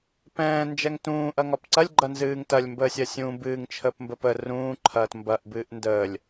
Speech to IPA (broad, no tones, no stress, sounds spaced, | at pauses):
p ɛ̃ː n d͡ʒ ɛ ŋ t ũː ʔ ɐ ŋ ɒ p ǀ ɐ lʲ ɡ͡ǃ ɐ n z ɨː ŋ t ɐ lʲ m b əː sʲ ɐ sʲ ũː b ɨː ŋ t͡ʃʰ əː p m b ə p ə r ũː ǃʰ ɐː t m b ɐ ʔ b ɨː ʔ n d əː lʲ